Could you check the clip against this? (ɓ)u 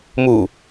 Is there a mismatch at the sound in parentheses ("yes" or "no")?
yes